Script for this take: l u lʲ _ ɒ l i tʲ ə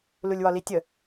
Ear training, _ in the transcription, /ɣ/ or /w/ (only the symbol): w